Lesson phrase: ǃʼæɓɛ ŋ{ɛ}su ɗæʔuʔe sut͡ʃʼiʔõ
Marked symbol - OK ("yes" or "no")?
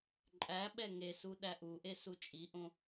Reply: no